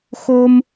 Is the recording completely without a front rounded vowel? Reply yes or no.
yes